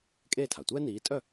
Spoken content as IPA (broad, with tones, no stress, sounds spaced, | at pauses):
kʼ eː˥˩ tʰ a˩ tʷ ɛː˥ n iː˩˥ tʼ œ˥˩